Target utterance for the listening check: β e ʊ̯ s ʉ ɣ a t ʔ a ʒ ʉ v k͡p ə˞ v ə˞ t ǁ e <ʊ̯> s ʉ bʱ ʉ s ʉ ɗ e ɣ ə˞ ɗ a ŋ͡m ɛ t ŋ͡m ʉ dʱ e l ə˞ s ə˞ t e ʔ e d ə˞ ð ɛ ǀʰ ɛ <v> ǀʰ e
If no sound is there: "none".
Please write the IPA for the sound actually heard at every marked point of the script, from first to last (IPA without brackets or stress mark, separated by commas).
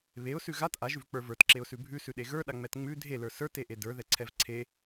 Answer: ʊ̯, v